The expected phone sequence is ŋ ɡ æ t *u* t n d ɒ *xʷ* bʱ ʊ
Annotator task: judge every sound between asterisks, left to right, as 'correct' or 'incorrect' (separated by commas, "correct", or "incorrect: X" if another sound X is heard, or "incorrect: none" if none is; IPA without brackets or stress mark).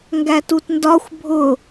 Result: correct, correct